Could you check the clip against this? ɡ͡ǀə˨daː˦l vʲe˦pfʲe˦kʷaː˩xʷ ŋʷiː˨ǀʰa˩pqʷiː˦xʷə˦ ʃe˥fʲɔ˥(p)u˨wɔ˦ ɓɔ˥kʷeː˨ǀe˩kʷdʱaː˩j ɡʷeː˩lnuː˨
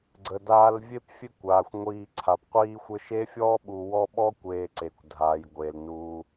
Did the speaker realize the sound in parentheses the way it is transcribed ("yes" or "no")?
no